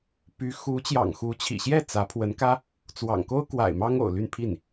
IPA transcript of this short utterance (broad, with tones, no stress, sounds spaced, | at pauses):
p y˧˥ x u˧˥ t͡ɕ j ɑ̰˨˩ ŋ x u˧˥ t͡ɕʰ ḭ˨˩ ɕ j ɛ˥˩ t͡s ä˧˥ pʰ w ə˧˥ n k ä˥ | t͡s w ɑ̰˨˩ ŋ k o˥ ʊ̯ k w a̰˨˩ ɪ̯ m ɑ˥ ŋ o̰˨˩ ʊ̯ l y˥˧ n pʰ i˥˩ n